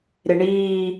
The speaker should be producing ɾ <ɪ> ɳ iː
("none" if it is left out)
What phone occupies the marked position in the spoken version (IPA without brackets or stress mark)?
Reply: ɪ